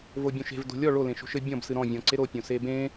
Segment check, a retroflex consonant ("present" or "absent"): present